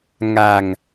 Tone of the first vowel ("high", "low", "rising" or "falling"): low